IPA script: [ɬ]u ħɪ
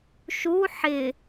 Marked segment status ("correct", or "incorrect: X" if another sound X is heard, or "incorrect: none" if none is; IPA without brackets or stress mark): incorrect: ʃ